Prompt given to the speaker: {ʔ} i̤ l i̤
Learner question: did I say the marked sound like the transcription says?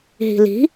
no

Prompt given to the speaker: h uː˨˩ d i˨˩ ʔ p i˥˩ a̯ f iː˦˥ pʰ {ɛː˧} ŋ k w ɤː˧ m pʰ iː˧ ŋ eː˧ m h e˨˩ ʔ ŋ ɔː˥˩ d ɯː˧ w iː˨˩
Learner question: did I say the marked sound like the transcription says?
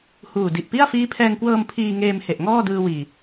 yes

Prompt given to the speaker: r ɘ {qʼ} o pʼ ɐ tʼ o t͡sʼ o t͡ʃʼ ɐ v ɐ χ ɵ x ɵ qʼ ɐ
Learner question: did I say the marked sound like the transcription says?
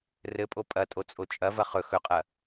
no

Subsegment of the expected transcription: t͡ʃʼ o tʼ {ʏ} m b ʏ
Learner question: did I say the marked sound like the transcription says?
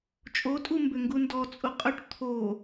no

